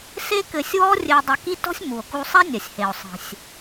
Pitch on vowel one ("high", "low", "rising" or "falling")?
high